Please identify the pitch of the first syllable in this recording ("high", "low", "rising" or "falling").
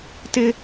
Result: high